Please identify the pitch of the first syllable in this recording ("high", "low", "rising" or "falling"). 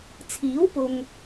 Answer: rising